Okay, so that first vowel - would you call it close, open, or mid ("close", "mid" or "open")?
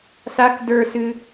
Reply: open